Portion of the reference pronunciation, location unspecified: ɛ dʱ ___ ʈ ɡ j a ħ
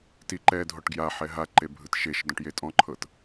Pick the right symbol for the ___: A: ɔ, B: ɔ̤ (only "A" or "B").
A